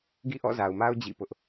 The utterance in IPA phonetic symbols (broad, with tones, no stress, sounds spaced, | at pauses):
ɡ ḭ˦˨ ʔ ɔ̰˦˨ z a˨ ʊ̯ m a˦ ʊ̯ d͡ʑ ḭ˦˨ p ʊ˦ ʔ